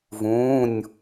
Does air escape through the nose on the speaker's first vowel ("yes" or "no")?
yes